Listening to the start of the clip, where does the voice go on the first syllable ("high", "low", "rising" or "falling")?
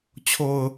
low